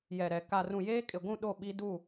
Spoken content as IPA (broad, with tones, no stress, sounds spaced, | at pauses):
j ɛ˨ ɾ ɛ˨ k a˨ r ũ˨ j eː˦ kʼ ɪ˨ ɡʷ ũ˦˨ ɗ o˦˨ ɓ i˦ d u˦˨